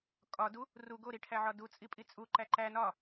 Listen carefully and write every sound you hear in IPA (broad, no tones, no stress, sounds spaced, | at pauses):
kʼ ɒ d u | r u ɡ o ɾ i ʈʰ æ ʕ ɒ d u t͡sʼ i pʼ i t͡sʼ u ǃ æ ǃ æ n ɒ